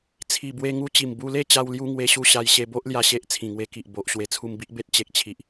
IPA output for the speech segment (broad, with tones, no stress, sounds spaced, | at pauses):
t͡sʰ i˨˩ b w e˧ ŋ u˧ t͡ɕ i˨˩ m b u˧ l e˥˧ t͡ɕ a˧ w l j u˧ ŋ w e˧ ɕ u˥˧ ɕ a˧ j ɕ e˧ b o˦ ʔ l j a˦ ɕ e˦ ʔ t͡sʰ ĩ˨˩ ŋ w e˧ k i˨ ʔ b o˨ ʔ ɕ w e˧ t͡sʰ u˧ m b i˦ ʔ b e˦ t̚ t͡ɕ e˨ k̚ t͡ɕʰ i˨ ʔ